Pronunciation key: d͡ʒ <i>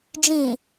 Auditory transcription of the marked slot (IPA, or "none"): ĩ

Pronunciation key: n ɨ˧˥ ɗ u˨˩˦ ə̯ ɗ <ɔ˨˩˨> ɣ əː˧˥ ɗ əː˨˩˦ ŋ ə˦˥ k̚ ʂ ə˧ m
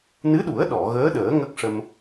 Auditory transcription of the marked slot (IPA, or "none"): ɔ˨˩˨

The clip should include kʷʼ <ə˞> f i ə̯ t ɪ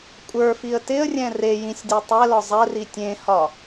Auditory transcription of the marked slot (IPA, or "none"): ə˞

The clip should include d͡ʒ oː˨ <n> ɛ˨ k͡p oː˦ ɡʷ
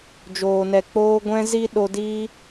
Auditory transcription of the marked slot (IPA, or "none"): n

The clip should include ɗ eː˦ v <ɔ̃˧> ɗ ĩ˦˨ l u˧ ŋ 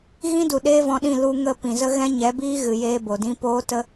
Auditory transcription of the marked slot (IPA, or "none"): ɔ̃˧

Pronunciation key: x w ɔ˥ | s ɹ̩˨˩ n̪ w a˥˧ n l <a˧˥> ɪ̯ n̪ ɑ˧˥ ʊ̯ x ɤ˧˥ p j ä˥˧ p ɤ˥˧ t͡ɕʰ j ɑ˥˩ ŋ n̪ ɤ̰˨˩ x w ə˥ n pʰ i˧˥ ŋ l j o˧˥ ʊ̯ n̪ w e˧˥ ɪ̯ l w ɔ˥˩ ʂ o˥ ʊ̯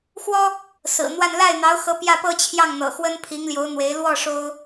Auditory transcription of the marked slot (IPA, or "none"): a˥˩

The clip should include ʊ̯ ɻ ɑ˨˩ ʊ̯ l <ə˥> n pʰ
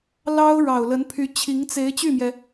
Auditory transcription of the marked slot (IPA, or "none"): ə˧˥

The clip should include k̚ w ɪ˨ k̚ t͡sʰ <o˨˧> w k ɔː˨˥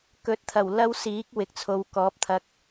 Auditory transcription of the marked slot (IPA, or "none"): o˨˧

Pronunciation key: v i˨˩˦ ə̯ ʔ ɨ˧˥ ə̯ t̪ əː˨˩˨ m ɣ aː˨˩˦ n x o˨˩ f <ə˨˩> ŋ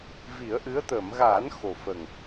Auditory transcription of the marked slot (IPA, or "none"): ə˨˩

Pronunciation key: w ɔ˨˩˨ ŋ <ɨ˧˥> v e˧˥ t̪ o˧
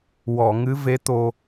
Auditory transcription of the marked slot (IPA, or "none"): ɨ˧˥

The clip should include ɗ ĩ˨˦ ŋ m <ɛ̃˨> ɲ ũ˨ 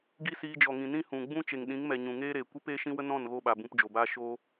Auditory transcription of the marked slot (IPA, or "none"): ɛ˨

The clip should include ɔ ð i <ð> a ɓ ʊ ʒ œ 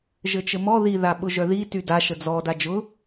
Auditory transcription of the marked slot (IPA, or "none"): ð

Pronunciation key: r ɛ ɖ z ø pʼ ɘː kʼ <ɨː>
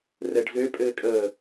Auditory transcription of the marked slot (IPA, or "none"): əː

